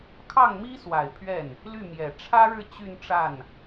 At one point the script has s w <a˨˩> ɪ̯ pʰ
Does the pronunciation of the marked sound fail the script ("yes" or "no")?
no